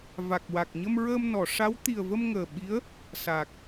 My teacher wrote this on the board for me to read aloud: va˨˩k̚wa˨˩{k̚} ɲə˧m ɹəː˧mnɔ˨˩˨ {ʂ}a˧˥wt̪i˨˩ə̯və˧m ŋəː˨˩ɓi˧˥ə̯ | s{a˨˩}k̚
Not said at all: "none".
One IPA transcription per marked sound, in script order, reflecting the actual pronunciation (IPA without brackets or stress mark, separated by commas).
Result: k̚, ʂ, a˨˩